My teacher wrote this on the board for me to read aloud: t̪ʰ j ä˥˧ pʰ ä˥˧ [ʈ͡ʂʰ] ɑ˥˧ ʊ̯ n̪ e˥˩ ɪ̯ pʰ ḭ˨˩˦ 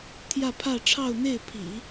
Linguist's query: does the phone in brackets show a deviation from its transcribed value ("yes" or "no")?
no